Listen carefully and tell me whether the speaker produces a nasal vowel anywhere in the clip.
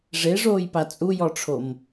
no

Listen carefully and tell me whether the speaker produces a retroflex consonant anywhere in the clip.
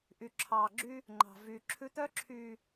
no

